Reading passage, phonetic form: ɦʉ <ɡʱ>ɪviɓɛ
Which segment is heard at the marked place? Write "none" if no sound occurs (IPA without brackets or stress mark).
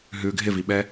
ɡʱ